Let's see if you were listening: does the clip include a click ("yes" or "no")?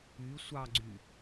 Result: yes